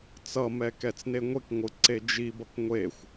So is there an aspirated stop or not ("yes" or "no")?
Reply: no